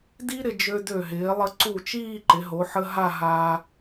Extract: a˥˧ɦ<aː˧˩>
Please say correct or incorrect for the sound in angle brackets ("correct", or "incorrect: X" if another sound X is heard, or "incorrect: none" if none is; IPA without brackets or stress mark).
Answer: incorrect: aː˧